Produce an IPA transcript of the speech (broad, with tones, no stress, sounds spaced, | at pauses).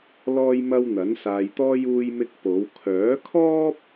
l ɔː˥ j m ɐ˥ w n̪ ɐ˨˥ n s aː˧ j t̪ ɔː˥ j uː˥ j m ɪ˥ k̚ p o˨˥ w kʰ œː˨˥ kʰ ɔː˥ p̚